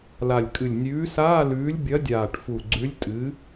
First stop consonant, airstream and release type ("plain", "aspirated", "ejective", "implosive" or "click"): ejective